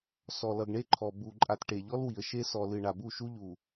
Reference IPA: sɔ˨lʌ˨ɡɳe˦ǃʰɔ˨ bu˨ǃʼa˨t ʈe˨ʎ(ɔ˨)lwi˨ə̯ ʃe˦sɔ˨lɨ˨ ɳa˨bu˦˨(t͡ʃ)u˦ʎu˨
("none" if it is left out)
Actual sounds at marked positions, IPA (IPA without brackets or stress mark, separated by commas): ɔ˦, ʃ